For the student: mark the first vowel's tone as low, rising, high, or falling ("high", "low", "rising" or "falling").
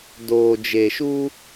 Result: low